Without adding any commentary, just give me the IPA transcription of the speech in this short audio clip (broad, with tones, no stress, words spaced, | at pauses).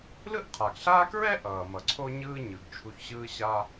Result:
lɯ˥ʔqʰa˩ɡɬaː˥ kɹɛ˥ʔʌː˩ mʌ˩ǀʰo˥ɲɯː˥ɲɯ˩ɡ t͡ʃʰu˧çɕɯː˥ɕa˥